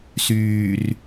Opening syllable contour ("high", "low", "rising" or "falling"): low